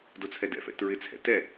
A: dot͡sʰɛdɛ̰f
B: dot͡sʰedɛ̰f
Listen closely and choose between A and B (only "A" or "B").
A